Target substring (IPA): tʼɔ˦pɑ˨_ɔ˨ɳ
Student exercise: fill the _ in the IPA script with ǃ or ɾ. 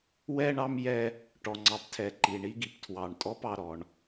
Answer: ɾ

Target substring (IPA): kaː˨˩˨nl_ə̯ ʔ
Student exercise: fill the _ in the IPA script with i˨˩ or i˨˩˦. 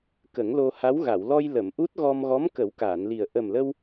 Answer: i˨˩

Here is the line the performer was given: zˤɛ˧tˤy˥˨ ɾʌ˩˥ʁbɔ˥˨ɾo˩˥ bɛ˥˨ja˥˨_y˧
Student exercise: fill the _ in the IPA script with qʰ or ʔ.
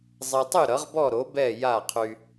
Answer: qʰ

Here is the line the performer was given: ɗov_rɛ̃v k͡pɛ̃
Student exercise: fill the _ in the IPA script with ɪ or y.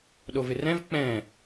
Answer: ɪ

